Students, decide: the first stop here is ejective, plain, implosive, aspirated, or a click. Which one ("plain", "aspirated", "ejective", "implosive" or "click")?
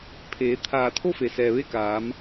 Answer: aspirated